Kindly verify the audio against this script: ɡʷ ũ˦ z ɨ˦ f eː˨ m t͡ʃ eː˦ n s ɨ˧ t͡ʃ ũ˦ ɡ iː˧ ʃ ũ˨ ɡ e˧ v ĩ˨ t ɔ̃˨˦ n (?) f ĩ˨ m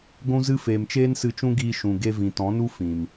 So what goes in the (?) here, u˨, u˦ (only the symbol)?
u˦